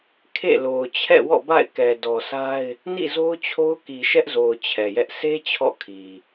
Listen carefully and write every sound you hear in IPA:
kʰ ḛ˦˨ l o˨ ʊ̯ t͡ɕʰ ɛ̰˦˨ w ɔ̰˦˨ b a̰˦˨ ɪ̯ k ɛ˨ d ɔ˨ sʰ a˦ ɪ̯ | n ḭ˦˨ z o˦ ʊ̯ t͡ɕʰ o˦ ʊ̯ k i˨ ʃ ɛ˦ ʔ z o˨ ʊ̯ t͡ɕʰ ɛ˨ j ɛ˦ ʔ sʰ e˦ t͡ɕʰ ɔ̰˦˨ kʰ i˨

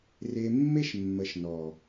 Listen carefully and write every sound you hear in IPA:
r e˨ mː e˦ ʃ mː ə˨ ʃ n ɔ˨

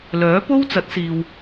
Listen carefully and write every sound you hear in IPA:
l œː˨˥ p o˥ w t͡s ɐ˨˥ t̚ s iː˨ w

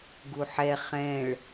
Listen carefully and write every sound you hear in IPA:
ɡ u ħ ɛ χ ɛ̃ ɭ

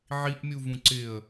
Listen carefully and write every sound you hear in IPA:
ʕ i ʔ mʲ u v ũ ǀ ɪ ə̯

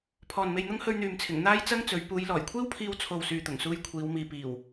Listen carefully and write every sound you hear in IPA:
pʰ ɔː˨ n m e˧ j n̪ ʊ˥ ŋ h ɵ˧ ɥ n̪ yː˨ m t͡sʰ ɪ˨˩ ŋ n̪ aː˥ j t͡s ɐ˥ ŋ t͡s ɵ˨˧ ɥ p uː˨˧ j l ɔː˨˩ j kʷʰ iː˥ w pʰ iː˧ w t͡sʰ o˨ w s yː˨ t̪ ʊ˨˩ ŋ s uː˧ j kʷʰ iː˨˧ w m iː˨ p iː˨˩ w

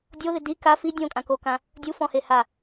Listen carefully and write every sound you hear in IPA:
dʲ o ð ɪ d i k a f i dʲ õ kʼ ã k o k ã | dʲ u f ɔ̃ h e h a

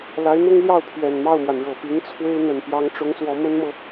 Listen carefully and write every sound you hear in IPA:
l a˧˥ ɪ̯ n̪ ʊ˥ ŋ l j ɑ˥˩ ʊ̯ pʰ ɥ ɛ˨˩ n m ɑ˥˩ ʊ̯ m w a˩ n ɻ ɤ˨˩ p i˧˥ ŋ t͡sʰ w e˥ ɪ̯ n̪ ə˨˩ n p j ɑ˧˥ ŋ ʈ͡ʂ ʊ˧˥ ŋ s w ɔ˧˥ m ə˥ n m ɤ˨

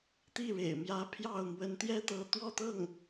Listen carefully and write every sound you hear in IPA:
t̪ i˥˩ ɻ ḛ˨˩ ɪ̯ m j ä˧˥ pʰ j ɑ˥˩ ʊ̯ m w ə˧˥ n t̪ j ɛ˥ t̪ ɤ˧˥ t̪ w ɔ˥˧ t̪ ɤ˥˩ ŋ

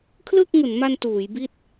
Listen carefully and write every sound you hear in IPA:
kʰ l ɯː˥˩ k̚ ŋ u˩˦ n m a˧ n t uː˩˦ j b i˥˩ t̚

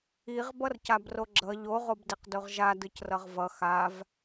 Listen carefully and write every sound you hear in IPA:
i ʁ b ʌ r c a b r o ɡ͡ǁ ʌ ʎ o ʁ o b d i q d o ʁ ʒ a d ɯ c r ʌ ʁ v ʌ x a v

